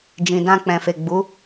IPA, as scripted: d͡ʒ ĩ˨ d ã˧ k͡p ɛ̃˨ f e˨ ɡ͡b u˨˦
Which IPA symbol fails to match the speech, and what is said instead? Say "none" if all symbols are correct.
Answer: none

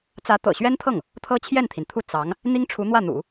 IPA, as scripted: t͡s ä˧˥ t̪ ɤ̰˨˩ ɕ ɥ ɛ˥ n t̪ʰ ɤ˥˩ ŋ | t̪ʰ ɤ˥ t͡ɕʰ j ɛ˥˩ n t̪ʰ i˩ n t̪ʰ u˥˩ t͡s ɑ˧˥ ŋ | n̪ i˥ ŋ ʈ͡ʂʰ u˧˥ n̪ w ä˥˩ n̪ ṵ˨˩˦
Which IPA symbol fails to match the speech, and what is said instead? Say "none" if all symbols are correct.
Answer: none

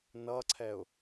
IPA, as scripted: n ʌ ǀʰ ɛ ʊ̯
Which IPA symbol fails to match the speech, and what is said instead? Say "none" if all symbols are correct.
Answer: none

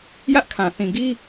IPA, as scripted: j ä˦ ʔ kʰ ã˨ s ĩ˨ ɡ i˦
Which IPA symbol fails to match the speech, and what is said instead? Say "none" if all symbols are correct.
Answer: s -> θ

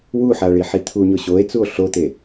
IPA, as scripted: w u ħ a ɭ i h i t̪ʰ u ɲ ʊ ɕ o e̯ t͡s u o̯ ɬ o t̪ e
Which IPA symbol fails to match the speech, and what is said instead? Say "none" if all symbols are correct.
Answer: h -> ħ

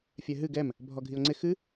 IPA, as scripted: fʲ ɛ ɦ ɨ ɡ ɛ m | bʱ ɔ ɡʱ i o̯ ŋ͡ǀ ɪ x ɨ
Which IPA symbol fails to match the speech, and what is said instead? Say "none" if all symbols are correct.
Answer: none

